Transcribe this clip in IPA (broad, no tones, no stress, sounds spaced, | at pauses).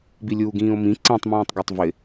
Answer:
b i lʲ uː ɡ ĩː o̯ m ĩ ǀ ĩ tˤ m ĩː tˤ ɡ æ tˤ v ɪ